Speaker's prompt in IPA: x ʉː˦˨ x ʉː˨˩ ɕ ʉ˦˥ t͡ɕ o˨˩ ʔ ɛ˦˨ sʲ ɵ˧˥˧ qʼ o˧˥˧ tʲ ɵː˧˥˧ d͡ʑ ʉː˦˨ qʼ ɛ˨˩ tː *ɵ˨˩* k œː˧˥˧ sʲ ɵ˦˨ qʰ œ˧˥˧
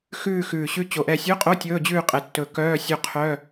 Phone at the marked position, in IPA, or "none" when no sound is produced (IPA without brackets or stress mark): ɵ˨˩